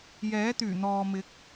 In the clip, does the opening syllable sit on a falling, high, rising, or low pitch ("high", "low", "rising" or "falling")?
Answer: rising